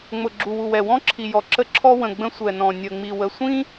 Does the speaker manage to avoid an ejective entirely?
yes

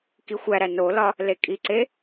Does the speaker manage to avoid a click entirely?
no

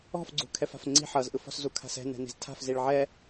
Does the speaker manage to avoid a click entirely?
no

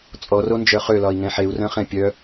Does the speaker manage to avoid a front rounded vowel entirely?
no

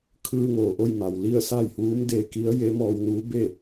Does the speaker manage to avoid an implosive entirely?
yes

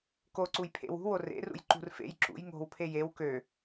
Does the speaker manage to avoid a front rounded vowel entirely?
no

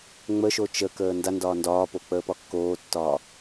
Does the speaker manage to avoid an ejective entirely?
yes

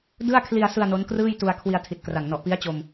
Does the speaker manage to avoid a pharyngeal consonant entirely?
yes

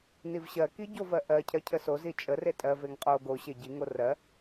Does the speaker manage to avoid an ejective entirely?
no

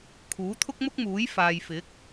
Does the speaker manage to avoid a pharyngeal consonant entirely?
yes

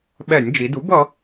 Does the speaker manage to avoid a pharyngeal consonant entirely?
yes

